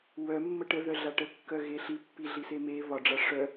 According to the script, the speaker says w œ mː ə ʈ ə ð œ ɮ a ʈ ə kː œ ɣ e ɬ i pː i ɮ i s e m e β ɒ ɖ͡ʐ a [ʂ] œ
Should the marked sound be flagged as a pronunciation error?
no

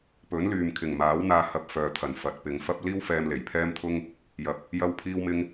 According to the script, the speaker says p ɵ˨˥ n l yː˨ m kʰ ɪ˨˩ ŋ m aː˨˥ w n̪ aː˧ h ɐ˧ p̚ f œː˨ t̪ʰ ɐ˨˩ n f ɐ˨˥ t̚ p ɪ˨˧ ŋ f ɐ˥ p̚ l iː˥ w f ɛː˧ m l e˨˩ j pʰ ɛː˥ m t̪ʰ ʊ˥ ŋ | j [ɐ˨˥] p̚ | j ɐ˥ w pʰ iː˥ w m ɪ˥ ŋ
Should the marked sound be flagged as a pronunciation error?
no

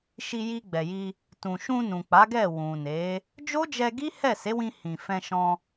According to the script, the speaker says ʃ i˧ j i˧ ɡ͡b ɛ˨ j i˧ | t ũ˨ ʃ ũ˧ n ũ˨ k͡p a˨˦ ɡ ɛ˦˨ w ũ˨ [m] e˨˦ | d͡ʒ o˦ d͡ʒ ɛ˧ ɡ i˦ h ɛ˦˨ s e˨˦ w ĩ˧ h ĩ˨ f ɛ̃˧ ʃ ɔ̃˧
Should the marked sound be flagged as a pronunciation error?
yes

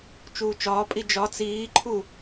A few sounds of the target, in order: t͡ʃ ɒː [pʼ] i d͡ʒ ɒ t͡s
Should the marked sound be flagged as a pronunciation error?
no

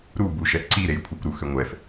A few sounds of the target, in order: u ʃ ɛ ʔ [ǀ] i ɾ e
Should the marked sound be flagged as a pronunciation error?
no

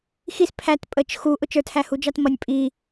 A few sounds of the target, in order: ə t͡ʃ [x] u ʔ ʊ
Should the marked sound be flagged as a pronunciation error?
no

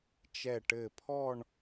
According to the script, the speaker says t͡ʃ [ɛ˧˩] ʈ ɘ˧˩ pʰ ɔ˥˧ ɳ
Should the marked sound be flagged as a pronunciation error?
no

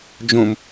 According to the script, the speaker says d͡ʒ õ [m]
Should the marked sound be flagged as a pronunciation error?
no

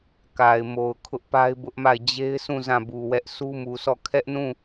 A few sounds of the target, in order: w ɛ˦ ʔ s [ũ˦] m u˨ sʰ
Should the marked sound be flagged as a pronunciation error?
yes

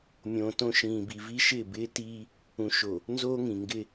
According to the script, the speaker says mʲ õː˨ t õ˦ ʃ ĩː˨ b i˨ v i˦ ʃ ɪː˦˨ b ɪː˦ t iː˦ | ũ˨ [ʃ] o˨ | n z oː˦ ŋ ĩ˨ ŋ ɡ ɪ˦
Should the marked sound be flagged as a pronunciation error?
no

